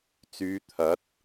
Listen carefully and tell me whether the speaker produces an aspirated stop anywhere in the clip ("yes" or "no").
yes